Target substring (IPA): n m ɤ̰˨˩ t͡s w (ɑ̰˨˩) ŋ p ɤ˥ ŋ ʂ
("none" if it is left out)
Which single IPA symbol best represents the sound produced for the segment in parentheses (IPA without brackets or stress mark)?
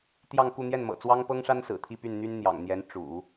ɑ˥